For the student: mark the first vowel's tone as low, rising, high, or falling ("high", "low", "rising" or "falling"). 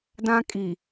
high